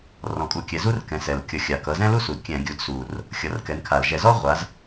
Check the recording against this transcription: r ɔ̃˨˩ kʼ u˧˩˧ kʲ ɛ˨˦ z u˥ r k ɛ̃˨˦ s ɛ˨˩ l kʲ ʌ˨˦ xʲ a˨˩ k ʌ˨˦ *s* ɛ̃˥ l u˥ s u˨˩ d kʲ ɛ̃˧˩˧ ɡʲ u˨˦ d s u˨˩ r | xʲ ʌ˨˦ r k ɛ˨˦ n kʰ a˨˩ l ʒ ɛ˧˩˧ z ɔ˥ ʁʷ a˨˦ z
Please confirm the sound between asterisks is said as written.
no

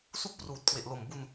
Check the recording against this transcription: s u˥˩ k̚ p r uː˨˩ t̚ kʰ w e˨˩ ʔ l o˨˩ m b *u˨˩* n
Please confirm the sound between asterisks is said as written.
no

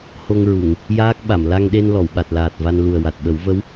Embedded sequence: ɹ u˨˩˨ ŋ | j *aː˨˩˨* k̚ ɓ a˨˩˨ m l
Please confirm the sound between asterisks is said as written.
no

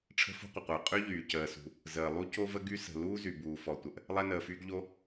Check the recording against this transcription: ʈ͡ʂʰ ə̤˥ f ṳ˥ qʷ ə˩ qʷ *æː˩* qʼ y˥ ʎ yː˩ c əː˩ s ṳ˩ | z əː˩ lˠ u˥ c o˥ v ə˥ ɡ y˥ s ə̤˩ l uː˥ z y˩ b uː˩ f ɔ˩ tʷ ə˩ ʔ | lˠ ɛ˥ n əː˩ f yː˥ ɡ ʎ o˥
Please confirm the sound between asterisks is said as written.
no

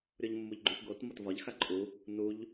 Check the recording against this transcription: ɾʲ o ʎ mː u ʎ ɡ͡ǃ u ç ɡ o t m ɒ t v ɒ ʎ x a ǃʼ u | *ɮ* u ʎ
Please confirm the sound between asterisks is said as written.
no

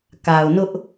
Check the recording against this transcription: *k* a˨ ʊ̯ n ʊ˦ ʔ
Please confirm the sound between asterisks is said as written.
yes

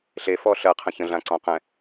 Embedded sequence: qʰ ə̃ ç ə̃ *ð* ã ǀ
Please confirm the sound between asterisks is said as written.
no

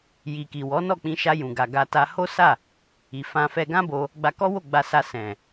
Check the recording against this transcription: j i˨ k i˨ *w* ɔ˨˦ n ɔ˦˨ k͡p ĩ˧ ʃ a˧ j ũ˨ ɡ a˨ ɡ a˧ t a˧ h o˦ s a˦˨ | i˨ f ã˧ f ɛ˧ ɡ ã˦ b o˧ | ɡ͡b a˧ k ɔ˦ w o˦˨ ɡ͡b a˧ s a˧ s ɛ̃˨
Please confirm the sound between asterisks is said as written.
yes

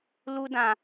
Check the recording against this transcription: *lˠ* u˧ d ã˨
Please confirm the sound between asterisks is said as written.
no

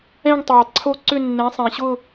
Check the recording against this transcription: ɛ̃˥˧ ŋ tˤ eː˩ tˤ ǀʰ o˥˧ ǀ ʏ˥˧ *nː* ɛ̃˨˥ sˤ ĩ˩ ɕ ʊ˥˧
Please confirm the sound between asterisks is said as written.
yes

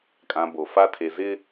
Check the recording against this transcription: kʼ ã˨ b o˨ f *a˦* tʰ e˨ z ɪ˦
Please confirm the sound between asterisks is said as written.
yes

